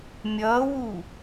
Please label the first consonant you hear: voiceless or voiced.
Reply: voiced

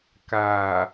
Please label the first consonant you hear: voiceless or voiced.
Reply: voiceless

